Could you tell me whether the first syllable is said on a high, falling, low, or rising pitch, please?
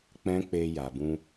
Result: high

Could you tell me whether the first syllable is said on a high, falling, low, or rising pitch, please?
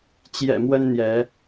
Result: low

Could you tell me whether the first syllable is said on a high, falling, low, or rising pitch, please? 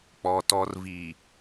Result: low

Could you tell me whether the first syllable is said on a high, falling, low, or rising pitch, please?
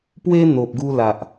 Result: high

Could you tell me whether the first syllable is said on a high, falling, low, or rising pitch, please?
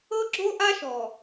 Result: high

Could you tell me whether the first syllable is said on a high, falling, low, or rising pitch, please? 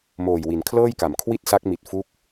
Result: low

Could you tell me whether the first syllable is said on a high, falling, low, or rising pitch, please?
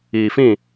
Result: low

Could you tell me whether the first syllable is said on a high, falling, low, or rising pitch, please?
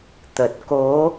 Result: low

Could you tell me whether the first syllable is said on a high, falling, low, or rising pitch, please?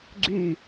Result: falling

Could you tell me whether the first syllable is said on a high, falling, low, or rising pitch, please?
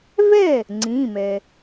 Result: falling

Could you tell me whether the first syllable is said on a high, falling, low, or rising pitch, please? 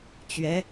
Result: rising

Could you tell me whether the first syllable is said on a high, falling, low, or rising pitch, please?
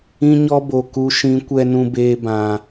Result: high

